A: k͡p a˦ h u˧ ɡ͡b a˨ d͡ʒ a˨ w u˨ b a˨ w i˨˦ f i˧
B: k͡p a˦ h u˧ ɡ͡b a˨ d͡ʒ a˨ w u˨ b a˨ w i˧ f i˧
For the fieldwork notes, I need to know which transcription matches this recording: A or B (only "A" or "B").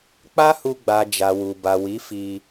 A